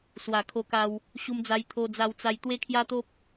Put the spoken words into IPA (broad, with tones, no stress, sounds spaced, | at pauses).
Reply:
s w a˨˩ kʰ o˧ k a˧ w | ɕ u˧ m d͡z a˧ j t̪ʰ o˧ d͡z a˧ w t͡s a˧ j t̪ w e˦ kʰ j a˦ t̪ o˦ p̚